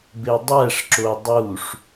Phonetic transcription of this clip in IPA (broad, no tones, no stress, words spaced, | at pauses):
bedˤæʂǁo dˤuʂ